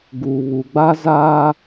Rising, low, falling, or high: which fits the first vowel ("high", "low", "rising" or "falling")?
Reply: low